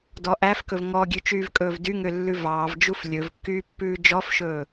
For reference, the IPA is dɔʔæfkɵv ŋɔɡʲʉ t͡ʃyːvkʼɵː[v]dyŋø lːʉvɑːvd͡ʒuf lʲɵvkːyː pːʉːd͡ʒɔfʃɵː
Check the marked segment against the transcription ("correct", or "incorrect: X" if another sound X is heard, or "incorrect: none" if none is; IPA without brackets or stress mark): correct